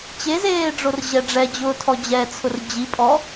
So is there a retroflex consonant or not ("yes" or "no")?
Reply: yes